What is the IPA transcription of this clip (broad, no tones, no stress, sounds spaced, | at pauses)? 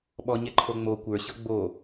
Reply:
ɓ ɔ ɲ ɛ ǃʰ o ŋ͡m o kʷ ə˞ ɕ ɤ ɡ͡b o